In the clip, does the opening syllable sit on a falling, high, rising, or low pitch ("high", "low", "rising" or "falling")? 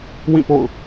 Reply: falling